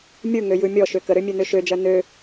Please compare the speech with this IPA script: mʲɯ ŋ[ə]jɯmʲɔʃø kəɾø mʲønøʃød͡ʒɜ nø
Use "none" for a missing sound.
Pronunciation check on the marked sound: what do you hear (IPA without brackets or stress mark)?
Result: ø